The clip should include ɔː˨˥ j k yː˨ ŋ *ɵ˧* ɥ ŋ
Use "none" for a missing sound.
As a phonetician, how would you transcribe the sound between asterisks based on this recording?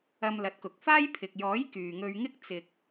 ɵ˧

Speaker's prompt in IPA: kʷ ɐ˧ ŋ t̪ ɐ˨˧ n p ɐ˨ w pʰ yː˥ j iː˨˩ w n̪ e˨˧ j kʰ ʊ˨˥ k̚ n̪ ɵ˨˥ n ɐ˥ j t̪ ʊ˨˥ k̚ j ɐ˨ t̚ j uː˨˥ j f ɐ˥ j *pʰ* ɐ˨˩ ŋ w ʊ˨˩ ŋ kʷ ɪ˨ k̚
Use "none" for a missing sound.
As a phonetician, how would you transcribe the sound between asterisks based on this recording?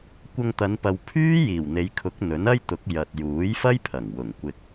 pʰ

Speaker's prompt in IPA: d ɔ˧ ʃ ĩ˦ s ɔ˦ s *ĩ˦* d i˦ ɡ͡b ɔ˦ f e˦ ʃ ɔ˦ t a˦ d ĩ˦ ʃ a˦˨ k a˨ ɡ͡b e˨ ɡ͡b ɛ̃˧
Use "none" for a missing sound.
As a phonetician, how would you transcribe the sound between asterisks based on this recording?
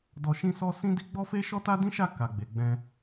ĩ˦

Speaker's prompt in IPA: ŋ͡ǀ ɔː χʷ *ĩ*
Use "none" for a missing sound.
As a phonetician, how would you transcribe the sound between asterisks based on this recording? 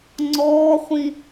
ĩ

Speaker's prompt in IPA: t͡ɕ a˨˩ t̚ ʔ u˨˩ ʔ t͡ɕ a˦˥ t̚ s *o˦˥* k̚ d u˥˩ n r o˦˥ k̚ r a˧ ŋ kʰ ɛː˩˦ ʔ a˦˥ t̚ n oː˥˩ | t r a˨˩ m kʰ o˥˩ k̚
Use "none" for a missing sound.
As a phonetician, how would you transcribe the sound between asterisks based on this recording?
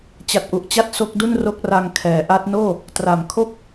o˦˥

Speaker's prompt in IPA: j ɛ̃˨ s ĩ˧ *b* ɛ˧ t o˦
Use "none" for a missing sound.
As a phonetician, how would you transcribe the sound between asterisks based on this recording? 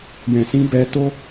b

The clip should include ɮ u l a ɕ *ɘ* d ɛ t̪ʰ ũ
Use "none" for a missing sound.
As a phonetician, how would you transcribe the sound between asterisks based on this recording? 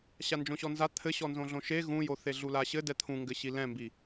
ɘ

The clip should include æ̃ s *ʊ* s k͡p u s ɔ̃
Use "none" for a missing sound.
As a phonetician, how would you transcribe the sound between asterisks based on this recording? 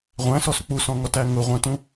ɔ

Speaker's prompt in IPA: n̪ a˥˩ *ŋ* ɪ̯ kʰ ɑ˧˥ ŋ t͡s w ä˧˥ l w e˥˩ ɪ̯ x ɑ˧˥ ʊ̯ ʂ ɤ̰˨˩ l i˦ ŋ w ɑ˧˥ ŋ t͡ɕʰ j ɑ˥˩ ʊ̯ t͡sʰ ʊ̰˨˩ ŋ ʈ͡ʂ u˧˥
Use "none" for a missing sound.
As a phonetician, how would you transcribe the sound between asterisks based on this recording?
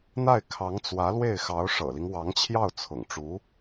none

